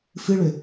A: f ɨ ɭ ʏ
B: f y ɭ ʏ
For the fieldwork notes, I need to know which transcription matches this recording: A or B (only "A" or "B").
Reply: A